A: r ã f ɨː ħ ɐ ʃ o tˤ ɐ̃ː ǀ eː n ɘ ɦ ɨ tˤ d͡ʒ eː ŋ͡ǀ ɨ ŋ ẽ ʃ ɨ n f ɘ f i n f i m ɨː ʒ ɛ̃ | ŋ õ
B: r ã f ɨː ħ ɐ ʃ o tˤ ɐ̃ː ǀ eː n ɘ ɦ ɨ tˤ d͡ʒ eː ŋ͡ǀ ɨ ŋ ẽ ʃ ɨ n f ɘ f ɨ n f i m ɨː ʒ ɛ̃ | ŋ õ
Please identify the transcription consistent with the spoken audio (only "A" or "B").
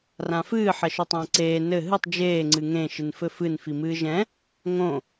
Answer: B